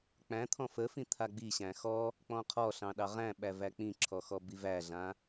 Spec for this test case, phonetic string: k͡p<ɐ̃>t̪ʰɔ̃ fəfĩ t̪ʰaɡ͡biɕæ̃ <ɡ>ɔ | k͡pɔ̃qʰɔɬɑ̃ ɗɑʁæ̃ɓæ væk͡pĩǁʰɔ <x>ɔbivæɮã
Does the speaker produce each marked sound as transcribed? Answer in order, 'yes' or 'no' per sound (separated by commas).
no, no, yes